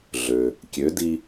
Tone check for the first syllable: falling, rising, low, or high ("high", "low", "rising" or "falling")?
low